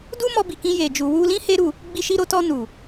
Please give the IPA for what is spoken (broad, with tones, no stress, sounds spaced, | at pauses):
d u˦ m ɔ˧ b i˨ k ĩ˧ j e˨ d͡ʒ u˨ w u˧ l ĩ˦ h e˦ ɾ u˦˨ | ɡ͡b i˧ ʃ i˧ ɾ o˧ t ɔ˧ n u˨